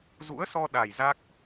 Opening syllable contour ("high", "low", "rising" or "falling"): rising